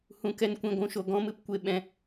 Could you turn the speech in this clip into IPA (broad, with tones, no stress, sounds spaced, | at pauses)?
h ũ˨ k ɛ˧ n kʷ ĩ˨ ɡʷ ũ˨ ʃ o˨ ɡ ɔ̃˦ m ɨ˧ p kʷ e˧ ɓ ɛ̃˧